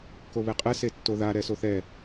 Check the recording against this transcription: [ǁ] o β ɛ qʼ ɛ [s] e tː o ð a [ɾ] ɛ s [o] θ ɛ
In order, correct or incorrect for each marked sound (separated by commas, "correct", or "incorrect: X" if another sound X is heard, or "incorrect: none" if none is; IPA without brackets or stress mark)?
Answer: incorrect: k, correct, correct, correct